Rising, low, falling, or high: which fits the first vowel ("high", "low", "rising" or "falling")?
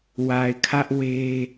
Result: low